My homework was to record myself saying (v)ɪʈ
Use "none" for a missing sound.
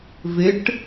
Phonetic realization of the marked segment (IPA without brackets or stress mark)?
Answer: v